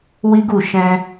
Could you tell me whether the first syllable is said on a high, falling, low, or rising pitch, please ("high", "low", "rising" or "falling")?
high